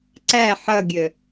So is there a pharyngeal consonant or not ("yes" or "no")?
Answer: yes